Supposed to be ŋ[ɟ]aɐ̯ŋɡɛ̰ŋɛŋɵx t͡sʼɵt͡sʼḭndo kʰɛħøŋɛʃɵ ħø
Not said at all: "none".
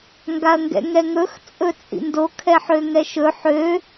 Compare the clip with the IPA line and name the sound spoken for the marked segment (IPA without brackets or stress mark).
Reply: ɡ